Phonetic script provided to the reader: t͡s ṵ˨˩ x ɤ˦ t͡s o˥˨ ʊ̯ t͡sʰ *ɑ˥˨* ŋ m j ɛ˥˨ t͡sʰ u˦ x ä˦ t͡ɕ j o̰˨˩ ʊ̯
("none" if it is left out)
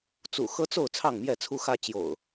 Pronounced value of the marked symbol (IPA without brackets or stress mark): ɑ˥˨